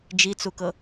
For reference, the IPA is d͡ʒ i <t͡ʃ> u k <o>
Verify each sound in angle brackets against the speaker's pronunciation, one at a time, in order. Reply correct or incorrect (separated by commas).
incorrect, incorrect